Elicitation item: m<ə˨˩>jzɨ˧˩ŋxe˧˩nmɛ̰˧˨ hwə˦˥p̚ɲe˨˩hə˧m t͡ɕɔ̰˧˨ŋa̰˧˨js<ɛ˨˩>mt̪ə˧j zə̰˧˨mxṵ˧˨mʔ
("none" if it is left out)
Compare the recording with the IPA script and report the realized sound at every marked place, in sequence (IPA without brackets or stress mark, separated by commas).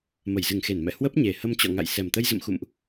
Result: ə˧˩, ɛ˨˩